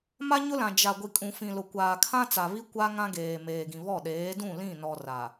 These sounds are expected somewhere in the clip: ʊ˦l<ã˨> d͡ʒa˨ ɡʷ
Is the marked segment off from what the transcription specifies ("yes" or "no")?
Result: no